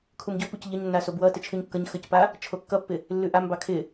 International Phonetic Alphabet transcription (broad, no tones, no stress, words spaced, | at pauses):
kʰumɟopuc ʎəɲnːa sobwʌ tɪt͡ʃʰʉɲkːʌɲ xəcpa | t͡ʃʰokːʌpːɪ | lːʉʔambɑ kʰɪ